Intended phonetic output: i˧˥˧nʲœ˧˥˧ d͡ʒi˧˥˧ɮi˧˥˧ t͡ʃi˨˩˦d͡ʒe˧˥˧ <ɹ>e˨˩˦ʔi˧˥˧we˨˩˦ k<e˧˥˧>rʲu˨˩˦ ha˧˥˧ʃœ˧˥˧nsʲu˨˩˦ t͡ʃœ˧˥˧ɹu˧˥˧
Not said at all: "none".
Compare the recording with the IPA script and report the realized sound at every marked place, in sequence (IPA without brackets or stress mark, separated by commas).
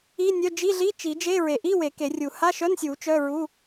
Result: ɹ, e˨˩˦